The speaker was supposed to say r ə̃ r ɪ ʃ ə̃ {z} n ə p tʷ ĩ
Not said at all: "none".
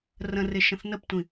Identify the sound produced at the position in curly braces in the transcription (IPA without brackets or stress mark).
θ